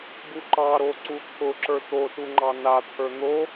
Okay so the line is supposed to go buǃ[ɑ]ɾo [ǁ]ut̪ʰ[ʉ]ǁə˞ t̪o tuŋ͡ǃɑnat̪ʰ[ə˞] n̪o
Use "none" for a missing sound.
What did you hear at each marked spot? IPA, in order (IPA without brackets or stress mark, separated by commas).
ɑ, ǀ, ʊ, ə˞